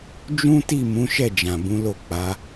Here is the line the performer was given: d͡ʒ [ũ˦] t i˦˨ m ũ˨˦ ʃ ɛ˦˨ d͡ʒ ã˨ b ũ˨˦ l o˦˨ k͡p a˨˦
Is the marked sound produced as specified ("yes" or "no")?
yes